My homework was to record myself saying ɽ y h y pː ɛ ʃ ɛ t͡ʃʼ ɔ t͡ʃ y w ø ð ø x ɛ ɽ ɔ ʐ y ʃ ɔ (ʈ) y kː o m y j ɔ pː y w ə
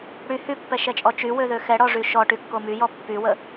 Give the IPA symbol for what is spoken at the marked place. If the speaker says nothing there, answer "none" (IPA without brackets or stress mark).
ʈ